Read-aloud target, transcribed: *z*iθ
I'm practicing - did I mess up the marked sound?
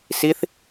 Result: yes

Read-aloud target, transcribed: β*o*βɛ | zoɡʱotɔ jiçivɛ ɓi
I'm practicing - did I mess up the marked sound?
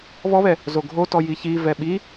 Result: yes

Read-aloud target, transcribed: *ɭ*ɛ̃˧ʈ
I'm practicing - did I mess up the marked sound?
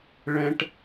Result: no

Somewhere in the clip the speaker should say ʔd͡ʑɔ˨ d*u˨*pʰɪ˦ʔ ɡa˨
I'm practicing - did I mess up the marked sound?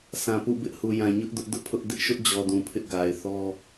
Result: yes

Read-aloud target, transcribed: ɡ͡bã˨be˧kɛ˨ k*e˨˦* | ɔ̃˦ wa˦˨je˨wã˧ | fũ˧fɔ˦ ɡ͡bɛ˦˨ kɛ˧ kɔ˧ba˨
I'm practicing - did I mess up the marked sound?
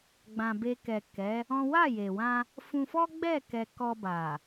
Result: yes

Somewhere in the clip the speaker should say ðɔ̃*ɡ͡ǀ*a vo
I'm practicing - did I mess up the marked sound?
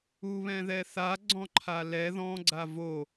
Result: no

